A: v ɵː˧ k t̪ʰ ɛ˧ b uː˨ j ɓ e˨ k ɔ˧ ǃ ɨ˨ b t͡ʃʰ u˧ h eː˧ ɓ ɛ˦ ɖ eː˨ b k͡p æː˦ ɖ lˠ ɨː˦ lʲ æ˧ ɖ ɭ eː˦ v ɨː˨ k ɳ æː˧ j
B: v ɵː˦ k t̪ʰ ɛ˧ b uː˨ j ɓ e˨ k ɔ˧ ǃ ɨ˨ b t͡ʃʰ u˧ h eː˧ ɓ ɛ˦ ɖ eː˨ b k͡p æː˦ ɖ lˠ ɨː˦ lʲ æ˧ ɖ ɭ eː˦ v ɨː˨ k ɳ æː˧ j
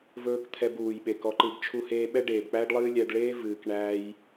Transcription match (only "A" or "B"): B